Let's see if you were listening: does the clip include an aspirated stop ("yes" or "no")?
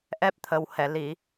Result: yes